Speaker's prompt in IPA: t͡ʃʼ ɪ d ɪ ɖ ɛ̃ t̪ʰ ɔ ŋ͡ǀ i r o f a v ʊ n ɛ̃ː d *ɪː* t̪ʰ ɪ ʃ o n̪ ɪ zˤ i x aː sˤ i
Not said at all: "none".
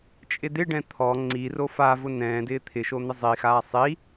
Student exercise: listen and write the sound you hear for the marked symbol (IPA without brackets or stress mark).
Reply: ɪː